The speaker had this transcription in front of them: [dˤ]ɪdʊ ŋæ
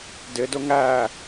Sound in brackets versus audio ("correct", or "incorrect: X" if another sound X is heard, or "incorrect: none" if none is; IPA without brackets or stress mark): incorrect: d